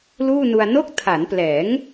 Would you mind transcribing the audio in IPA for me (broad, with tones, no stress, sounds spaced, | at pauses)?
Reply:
l uː˥˩ n u˧ a̯ n o˦˥ k̚ tʰ a˩˦ n p l ɛː˩˦ ŋ